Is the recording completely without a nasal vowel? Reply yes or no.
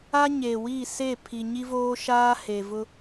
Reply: yes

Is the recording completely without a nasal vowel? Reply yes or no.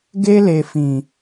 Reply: no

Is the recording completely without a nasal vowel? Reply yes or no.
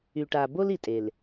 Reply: yes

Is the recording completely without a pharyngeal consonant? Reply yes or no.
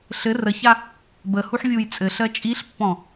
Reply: no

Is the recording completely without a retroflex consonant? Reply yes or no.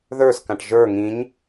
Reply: no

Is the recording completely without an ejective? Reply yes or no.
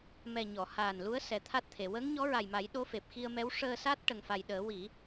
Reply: yes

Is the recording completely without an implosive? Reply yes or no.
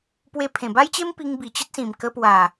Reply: yes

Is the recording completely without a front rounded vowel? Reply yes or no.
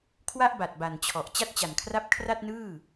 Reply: yes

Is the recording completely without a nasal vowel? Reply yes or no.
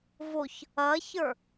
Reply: yes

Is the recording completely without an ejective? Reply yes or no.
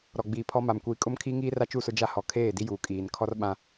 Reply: no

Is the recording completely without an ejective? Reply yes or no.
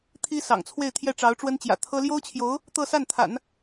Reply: yes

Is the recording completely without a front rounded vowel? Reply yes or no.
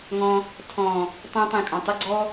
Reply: no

